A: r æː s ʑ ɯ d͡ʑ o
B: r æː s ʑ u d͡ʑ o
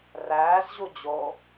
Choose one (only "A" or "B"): B